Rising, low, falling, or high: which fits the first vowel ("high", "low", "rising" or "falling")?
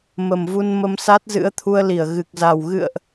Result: low